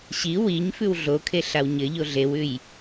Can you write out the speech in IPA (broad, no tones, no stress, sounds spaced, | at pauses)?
ɕ i w i ɲ f ʉ w ɮ o kʰ e ɬ a w ɲ ɘ ʎ o ɮ e w ʉ j